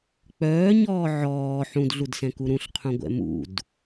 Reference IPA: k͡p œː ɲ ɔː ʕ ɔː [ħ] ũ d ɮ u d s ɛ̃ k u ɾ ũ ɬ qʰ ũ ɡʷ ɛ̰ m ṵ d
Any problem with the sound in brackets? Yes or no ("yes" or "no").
no